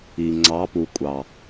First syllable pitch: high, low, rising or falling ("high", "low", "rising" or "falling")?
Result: low